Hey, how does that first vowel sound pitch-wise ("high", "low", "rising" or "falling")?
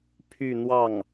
falling